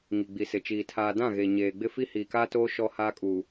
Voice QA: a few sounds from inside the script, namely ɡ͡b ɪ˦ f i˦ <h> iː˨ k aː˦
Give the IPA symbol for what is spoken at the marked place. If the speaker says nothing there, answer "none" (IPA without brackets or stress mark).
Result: h